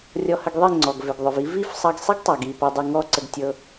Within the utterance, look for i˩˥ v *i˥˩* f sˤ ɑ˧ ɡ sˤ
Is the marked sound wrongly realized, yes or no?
no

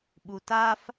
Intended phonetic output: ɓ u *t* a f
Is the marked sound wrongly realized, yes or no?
no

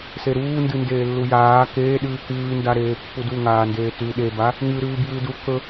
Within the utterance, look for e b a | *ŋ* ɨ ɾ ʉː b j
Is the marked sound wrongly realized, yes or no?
no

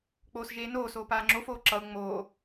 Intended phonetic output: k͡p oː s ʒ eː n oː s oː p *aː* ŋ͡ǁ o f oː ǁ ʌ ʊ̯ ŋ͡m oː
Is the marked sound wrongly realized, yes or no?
no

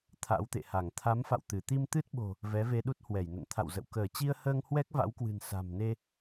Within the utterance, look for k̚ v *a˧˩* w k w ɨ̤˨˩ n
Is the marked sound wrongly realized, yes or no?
yes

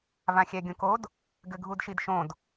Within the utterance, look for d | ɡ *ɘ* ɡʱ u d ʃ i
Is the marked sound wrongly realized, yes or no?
no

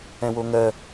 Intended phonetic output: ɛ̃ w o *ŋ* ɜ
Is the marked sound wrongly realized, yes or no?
no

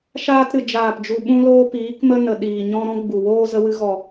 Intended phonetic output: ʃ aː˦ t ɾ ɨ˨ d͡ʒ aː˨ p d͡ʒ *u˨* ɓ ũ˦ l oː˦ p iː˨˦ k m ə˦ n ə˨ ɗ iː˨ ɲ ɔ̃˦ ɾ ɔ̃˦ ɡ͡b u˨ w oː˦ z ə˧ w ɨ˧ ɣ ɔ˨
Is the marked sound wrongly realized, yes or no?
no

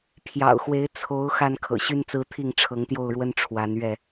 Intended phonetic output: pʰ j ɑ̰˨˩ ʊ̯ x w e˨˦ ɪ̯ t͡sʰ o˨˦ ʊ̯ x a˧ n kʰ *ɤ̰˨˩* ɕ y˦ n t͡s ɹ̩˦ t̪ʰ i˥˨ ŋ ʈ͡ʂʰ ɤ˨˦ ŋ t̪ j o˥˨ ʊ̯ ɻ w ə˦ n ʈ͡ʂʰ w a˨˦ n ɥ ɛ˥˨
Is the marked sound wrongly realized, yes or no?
no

